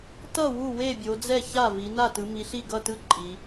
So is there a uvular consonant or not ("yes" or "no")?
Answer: no